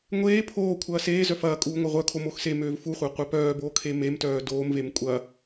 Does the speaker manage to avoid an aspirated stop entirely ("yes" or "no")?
no